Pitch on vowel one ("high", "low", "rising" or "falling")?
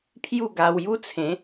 falling